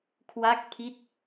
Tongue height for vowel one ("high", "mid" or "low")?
low